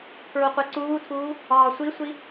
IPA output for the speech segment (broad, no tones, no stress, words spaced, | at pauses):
pʰɹoqʷeǀuːtʰuː | ɒːsʷisʷi